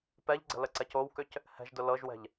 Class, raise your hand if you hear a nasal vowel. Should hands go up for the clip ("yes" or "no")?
no